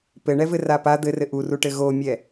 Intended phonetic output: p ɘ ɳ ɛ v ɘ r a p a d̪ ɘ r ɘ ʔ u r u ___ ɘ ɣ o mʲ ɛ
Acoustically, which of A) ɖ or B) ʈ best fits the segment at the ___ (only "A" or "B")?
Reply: B